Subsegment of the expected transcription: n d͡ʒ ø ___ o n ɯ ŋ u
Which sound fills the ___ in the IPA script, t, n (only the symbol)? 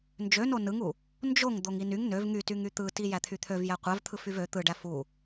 n